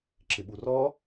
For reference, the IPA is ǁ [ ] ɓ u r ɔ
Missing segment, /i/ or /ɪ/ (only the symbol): ɪ